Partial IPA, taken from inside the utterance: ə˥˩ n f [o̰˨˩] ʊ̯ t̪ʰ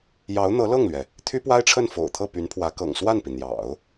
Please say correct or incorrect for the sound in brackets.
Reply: correct